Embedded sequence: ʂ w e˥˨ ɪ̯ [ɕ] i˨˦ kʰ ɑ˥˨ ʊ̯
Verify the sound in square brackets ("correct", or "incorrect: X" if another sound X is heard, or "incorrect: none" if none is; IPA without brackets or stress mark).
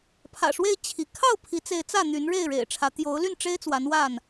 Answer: incorrect: t͡ɕʰ